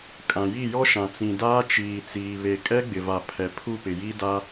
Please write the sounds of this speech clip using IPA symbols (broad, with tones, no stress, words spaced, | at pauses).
kʼã˨ji˦˨jɔ˦ʃã˨ t͡sĩ˨daː˦ t͡ʃiː˨t͡siː˨ βe˨ kʼɛ˦ɡ͡bɪ˨va˨ pʰɛ˨pʰu˦˨pɪ˨ji˦ da˦